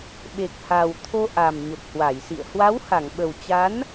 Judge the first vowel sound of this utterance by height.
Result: mid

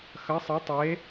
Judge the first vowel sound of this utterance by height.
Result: low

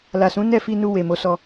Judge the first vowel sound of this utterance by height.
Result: low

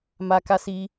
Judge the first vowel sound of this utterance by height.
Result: low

